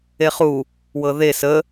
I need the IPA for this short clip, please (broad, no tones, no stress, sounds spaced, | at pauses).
e χ u | w ɤ ð e s ə